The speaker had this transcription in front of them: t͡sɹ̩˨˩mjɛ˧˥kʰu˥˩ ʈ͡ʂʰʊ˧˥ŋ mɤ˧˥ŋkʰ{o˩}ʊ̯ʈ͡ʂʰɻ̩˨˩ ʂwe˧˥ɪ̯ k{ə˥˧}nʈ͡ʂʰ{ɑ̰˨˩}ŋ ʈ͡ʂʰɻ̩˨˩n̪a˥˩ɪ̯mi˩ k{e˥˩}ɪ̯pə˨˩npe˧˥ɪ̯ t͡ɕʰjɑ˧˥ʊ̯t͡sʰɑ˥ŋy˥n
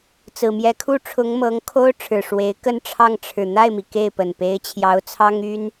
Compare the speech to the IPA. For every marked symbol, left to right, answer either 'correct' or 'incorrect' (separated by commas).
incorrect, correct, incorrect, correct